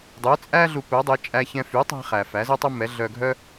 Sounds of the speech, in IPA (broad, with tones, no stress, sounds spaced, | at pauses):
dˤ ø˩˥ t͡sʼ æ˥ ɮ u˧ p œ˩˥ dˤ e˩˥ t͡ʃʼ æ˧ ç ɛ̃˧ f y˩˥ tˤ æ̤˧ χ æ˩ f æ˩˥ z œ˥ tˤ œ˥ m ɛ˩˥ ɮ œ˧ ɡʱ œ˥